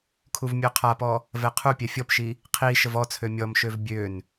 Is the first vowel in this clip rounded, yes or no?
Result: yes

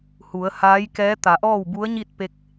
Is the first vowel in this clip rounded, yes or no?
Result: yes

